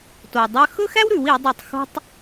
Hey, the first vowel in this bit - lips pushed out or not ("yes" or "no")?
yes